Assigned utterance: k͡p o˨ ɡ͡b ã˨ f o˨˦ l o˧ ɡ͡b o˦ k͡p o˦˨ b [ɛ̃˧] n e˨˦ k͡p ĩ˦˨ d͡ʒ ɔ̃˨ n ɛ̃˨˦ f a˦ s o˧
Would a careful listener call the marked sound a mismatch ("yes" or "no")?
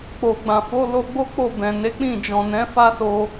yes